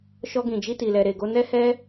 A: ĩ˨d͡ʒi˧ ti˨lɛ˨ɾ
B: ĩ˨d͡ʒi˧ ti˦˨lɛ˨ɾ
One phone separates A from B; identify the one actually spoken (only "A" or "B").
A